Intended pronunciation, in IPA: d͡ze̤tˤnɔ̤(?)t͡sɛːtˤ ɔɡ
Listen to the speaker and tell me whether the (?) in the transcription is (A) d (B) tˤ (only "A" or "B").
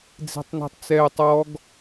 B